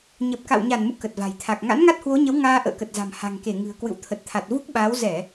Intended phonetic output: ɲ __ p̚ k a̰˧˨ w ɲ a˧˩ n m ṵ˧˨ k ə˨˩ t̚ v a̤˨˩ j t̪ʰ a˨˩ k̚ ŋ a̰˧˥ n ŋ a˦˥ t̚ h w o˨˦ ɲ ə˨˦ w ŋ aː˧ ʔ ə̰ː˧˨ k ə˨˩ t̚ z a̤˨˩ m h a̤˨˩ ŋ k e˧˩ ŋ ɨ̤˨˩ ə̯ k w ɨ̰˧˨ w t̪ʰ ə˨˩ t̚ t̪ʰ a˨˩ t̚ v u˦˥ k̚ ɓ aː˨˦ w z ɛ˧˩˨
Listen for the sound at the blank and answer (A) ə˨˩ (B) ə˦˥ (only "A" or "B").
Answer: A